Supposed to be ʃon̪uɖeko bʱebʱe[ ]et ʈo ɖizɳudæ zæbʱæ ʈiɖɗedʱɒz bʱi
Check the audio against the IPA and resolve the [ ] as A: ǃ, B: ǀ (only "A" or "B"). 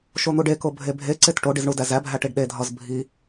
B